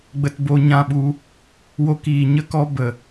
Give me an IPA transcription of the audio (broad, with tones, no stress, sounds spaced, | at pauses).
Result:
ɡ͡b ə˧ t b o˧ ɲ ã˦˨ ɓ u˦ | w o˧ k iː˨ ɲ ə˦ k ɔ˦ b ə˨